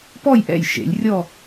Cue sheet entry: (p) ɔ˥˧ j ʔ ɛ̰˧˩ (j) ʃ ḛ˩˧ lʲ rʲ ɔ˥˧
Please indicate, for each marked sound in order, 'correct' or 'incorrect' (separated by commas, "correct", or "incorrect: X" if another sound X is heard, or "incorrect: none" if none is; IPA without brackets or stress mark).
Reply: correct, correct